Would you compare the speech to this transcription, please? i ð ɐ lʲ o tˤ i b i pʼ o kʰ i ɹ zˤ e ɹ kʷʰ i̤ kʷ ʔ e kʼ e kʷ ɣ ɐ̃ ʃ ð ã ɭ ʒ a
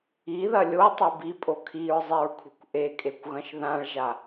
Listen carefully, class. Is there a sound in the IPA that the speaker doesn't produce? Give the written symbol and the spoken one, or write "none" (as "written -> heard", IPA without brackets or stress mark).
none